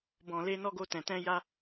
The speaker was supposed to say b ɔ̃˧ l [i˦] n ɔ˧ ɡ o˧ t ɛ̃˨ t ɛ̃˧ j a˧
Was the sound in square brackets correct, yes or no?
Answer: no